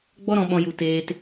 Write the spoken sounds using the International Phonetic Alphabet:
ɡ͡b ɔ˦ ɾ ɔ̃˧ ɓ ɔ̃˧ j u˧ t eː˦ t

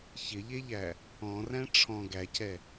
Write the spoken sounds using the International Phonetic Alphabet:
ç ɪ ʎ e ʎ æ | ɔ̃ r æ̃ ʈ͡ʂʰ ɔ̃ ɡ æ cʰ ɛ

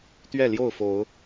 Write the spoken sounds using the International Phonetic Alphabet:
t̪ ɥ ɛ˥˨ l j o˥˨ ʊ̯ f o˨˦ ʊ̯

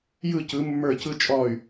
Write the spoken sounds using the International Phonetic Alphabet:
j ɯ˦˨ c ɯ˨˦ mː ə˞˦˨ c ɯ˦ t͡ʃʼ ɔː˦˨ y̯

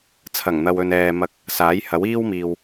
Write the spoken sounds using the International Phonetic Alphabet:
t͡sʰ ɐ˨˩ ŋ n̪ ɐ˨ w ɵ˨ n ɛː˨ m ɐ˨˥ k̚ | s aː˨˥ j h ɐ˨˥ w iː˥ w m iː˨ w

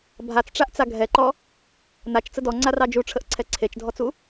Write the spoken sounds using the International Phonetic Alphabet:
bʱ a t͡s ʈ͡ʂ a ʔ t͡s a ɡʱ ɛ ǃ ɔ | n a t͡ʃ t͡s ə d ɔ ŋ͡ǀ a r ɑ d͡ʒ u ʈ͡ʂʰ ə ʔ ǀʰ ɛ ǀʰ e t͡ʃ dʱ ɔ t͡s u

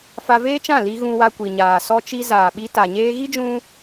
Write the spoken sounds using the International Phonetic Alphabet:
f a˧ v eː˦ t͡ʃ ã˦˨ l i˧ ɣ ũ˧ w a˧ kʷ i˨ ɲ aː˨ s ɔ˧ t͡ʃ i˧ z aː˨ ɓ i˧ t a˨ ɲ eː˧ ɣ i˦ d͡ʒ ũ˧

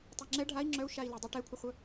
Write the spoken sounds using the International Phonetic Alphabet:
tˤ e ŋ͡ǁ ɛ ɖʱ a i̯ ŋ͡ǁ œ u̯ ʃ a i̯ l ə dˤ e ʈ ɛ kʷʰ ə χʷ œ

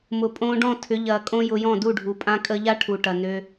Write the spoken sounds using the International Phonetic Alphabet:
m ʊ˨ pʼ õː˧ ɖ ɔ̃˦˨ tʰ ʏ˨˦ ʎ ɐː˨ kʼ õ˦ j ʊ˧ j ɔ̃˦˨ d u˦˨ ɖʱ u˨ pʼ ã˧ kʼ əː˧ ʎ a˦ ʈʰ u˨ ʈ ɐ˨ n ø˧

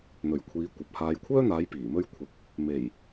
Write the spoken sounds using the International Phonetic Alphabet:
n̪ ɵ˨˩ ɥ kʷʰ iː˨˧ kʷ ɐ˨ p̚ h aː˨ j kʷʰ œː˥ n̪ aː˨˧ j p iː˨˩ m ɵ˥ ɥ kʷʰ ɪ˨˥ k̚ | m e˨˩ j

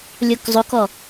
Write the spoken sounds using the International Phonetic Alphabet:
lʲ o k zˤ o k ɔ

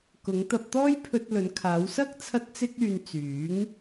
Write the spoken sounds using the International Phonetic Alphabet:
k ʊ˨˧ ŋ t̪ ɐ˧ p̚ t̪ ɔː˥ j pʰ ɵ˧ t̚ l ɵ˨˧ n kʰ aː˨˧ w s ɐ˥ k̚ t͡sʰ ɐ˥ t̚ t͡s ɪ˥ k̚ yː˧ n t͡s yː˨˥ ŋ

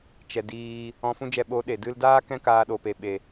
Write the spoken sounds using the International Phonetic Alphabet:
t͡ʃ ɛ˨ d iː˧ | ɔ̃˧ f ũ˦ d͡ʒ ɛ˧ ɓ o˨˦ ɗ e˨ d ɨ˧ l d aː˦ k ɛ̃˦ k aː˧ ɗ o˨ p e˨ ɓ e˨

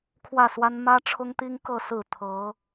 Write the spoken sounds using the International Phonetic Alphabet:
kʰ w ä˥˩ s w a˥ n m ä˥ ʈ͡ʂʰ ʊ˥ ŋ t̪ i˥ ŋ k ɤ˥˧ s ɹ̩˥˩ t̪ʰ ɤ˧˥

